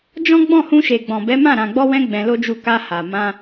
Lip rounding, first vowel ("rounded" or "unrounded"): rounded